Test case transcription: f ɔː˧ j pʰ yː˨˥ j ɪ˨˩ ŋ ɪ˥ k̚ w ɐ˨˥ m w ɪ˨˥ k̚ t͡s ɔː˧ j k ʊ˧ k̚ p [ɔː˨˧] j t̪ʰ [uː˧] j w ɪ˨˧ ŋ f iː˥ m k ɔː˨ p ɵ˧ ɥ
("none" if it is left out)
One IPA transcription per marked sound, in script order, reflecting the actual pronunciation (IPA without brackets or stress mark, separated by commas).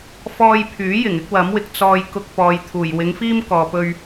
ɔː˨, uː˨˩